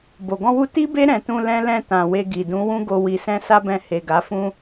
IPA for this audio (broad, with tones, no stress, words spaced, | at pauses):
bo˨ ɡɔ̃˧wu˧ ti˦be˦ ɾɛ̃˧ tũ˧ lɛ̃˦lɛ̃˦˨tã˨we˧ ɡi˨dũ˨˦wũ˦ɡo˧ wi˨sɛ̃˧ sa˦bɛ̃˧ he˨ɡa˨˦fũ˦